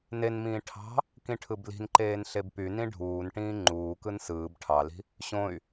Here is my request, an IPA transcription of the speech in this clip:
n e n m ĩː ʈʰ ɑ̤ | k ĩ ʈʰ ɯ b l i̤ n ǃ eː n ɬ e b p y n ĩ ɖʱ uː n ʈ ĩː ŋ͡ǃ uː k ɯ n s ɯː b ʈʰ ɑ l i̤ | ɕ õ y̯

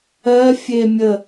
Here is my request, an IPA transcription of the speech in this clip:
ɜ fʲ e mʲ ə

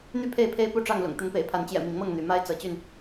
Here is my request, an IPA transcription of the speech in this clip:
n̪ y˥˨ pʰ e˥˨ ɪ̯ pʰ e˦ ɪ̯ p u˥˨ ʈ͡ʂ ɑ˥˨ ŋ l ʊ̰˨˩ ŋ t̪ ə˨˦ n p ḛ˨˩ ɪ̯ pʰ a˨˦ n t͡ɕ j ɛ̰˨˩ m i˨˦ ŋ m ɤ˥˨ ŋ n̪ y˨˦ m a˦ ɪ̯ t͡s ɤ˨˦ t͡ɕ y˥˨ n

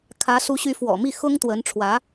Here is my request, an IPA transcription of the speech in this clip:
kʰ ä˧˥ s u˧˥ ɕ y˧˥ f w ɔ̰˨˩ m i˥˩ x ʊ˥ ŋ t̪ w ə˧˥ n ʈ͡ʂʰ w ä˧˥

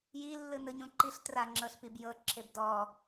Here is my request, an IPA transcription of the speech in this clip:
j i lː ɯ n ɯ ɲ ũ ǃ i ɬ t r a ŋ͡ǁ ɤ ɬ p i b j ɤ ǁʰ e b d ɔ

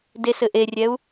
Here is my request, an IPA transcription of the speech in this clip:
d e s ɘ ʔ e rʲ ɛ u̯

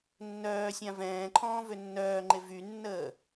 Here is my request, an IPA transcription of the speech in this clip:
nː œː sʲ ã v ɛ̃ː ǃʰ ɔ̃ː v ø nː œː ŋ͡ǃ e v y nː əː

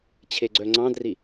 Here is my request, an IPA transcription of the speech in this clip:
t͡ɕʰ e ɡ͡ǀ œ ŋ͡ǀ ɑ̃ d r i

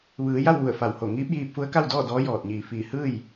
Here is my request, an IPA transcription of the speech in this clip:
ʋ ɯː˩˧ j a˥˨ w ʋ u˧˩ ə̯ f a˧˩ w h o˧˩ ŋ iː˧˥ p̚ j iː˧ p̚ f u˧˥ ə̯ k a˥˨ w d ɔː˥˨ d ɔː˧˥ j ɔː˧˩ t̚ ɲ iː˧˩ f iː˧˩ h ɯː˥˨ j

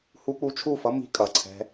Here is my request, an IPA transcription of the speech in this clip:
h u˧ k͡p u˧ t͡ʃʰ u˦˨ f ʌ˦ m i̤˦ kʼ ʌ˨ ǀʰ ɛ̤˧

